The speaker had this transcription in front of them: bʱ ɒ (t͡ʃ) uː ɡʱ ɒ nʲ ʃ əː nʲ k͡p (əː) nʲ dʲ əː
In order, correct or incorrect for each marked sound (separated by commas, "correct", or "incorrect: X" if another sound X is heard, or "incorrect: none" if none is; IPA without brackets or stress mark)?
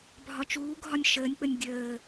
correct, incorrect: ə